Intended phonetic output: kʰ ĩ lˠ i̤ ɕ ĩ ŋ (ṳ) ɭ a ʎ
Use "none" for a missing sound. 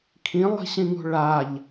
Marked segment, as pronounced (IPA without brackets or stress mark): ṳ